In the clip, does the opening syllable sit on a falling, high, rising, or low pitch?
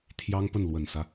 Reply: high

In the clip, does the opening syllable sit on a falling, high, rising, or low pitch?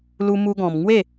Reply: high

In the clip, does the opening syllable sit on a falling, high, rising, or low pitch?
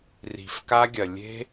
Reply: low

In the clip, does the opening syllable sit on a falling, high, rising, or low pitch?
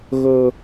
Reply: high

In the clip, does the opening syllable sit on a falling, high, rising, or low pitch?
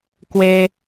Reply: high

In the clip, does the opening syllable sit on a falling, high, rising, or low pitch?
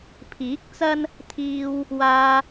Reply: rising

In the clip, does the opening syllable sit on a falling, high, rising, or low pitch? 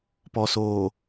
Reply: low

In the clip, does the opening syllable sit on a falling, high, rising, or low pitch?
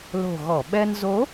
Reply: low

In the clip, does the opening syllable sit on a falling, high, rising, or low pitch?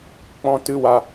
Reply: high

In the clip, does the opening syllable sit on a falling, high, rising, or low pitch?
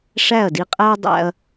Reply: falling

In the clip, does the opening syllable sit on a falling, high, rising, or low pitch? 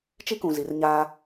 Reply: high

